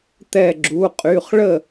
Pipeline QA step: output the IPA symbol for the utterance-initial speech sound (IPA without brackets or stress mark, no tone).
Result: t̪